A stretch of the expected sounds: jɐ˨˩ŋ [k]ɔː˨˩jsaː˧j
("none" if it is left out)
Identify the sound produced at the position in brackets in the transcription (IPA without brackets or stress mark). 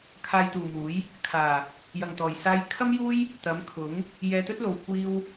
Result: t̪